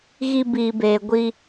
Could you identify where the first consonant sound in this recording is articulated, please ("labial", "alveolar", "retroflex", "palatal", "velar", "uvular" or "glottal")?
velar